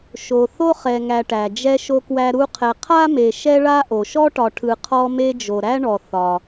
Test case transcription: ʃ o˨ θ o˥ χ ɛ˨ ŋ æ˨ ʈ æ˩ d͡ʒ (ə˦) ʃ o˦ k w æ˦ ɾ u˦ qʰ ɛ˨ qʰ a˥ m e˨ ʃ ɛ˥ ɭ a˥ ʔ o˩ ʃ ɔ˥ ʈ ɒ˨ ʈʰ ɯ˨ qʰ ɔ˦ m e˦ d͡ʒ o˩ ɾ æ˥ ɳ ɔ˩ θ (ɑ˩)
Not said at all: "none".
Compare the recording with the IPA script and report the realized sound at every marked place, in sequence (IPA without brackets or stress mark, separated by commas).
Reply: ɛ˦, ɒ˩